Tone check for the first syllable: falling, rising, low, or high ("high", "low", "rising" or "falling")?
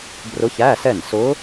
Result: rising